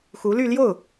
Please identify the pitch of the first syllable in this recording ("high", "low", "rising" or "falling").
rising